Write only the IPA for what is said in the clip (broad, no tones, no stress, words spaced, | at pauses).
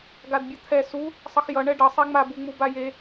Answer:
ɡadbʲʌt̪ʰɛ su | sˤʌxjʌ ɳɛɖʌ sˤeŋ͡ma buŋ͡mubaje